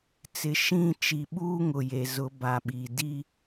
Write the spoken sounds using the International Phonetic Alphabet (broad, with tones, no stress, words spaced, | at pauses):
t͡sɪ˨˦ʃĩ˦˨ t͡ʃi˨ ɓuː˦ŋʊ˨je˨zʊ˨˦ ba˨ɓi˨ di˦